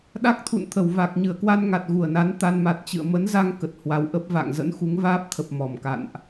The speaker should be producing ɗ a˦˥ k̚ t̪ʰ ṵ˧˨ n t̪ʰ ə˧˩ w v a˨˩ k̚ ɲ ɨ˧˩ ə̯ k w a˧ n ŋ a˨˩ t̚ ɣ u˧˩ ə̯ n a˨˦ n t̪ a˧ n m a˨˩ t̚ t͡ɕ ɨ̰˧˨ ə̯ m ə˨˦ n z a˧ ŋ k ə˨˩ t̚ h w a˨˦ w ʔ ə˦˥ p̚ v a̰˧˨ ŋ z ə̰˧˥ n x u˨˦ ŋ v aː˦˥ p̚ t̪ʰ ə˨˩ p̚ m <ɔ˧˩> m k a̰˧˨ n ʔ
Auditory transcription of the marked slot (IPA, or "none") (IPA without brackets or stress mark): ɔ˧˩